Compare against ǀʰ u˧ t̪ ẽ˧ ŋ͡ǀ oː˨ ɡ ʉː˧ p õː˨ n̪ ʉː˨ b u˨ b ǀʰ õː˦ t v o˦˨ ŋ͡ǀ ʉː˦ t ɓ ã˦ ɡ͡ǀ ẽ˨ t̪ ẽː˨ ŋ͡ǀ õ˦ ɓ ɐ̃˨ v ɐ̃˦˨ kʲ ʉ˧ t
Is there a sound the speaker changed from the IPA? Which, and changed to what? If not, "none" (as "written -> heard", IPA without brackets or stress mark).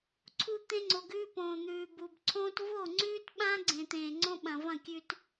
oː˨ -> o˨